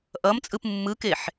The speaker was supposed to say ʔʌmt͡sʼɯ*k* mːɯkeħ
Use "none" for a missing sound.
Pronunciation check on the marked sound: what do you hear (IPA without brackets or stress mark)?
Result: p